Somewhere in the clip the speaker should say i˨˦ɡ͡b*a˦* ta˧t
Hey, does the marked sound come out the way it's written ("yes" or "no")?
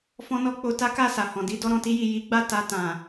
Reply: no